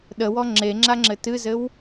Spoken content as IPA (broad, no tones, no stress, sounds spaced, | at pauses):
ɗ ə w ɔ ŋ͡ǁ e ŋ͡ǁ a ŋ͡ǁ ɘ t ɨ z ɘ w